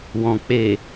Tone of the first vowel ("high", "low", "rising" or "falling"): low